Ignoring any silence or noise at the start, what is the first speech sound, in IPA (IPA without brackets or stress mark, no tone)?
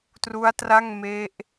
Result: t